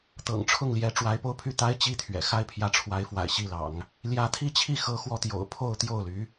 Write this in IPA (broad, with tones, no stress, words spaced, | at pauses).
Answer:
t̪ɤ̰˨˩ŋʈ͡ʂʰʊ˥˩ŋljɛ˧˥ ʈ͡ʂwa˧˥ɪ̯po˥ʊ̯pʰy˥˩t̪a˥ɪ̯ t͡ɕi˥t̪ʰɥɛ̰˨˩ xa˥˩ɪ̯pʰjä˧˥ʈ͡ʂʰwa˧˥ɪ̯fwa̰˨˩ɪ̯ ɕi˥˩lɑ̰˨˩˦ŋ | ljä˧˥t̪ʰi˥˧t͡ɕʰi˥˩ xɤ˥ xwɔ˥˩t̪jo̰˨˩ʊ̯ pʰo˥˧ʊ̯t̪jo˥˩ʊ̯ly˧˥